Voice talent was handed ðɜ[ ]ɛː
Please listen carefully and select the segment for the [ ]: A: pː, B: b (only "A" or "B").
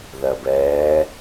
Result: B